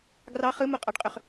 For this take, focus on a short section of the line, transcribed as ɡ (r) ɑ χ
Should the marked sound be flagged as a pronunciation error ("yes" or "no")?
no